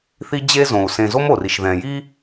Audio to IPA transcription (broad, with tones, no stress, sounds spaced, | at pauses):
θ i˦ d͡ʑ e˦ z õ˨ u̯ s ẽ˨ z o˦ m o˨ r i˨ ʃ ð ɛ̃˨ j i˦